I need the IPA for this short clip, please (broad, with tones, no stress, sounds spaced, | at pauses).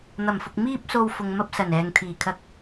n̪ ɐ˨˩ m f ʊ˨ k̚ m iː˧ p̚ s o˨ w f ʊ˨ ŋ m ɐ˥ p̚ s ɐ˨˩ n ɛː˨ ŋ t̪ʰ iː˨˩ kʰ ɐ˧ k̚